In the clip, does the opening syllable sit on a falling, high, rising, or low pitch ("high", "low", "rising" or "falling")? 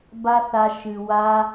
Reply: high